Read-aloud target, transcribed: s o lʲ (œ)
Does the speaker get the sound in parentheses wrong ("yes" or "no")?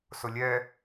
yes